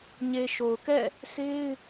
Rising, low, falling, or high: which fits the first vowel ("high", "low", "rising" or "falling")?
low